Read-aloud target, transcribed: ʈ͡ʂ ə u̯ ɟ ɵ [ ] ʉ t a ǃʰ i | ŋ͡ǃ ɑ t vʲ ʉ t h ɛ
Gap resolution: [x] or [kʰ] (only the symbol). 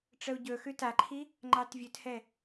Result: x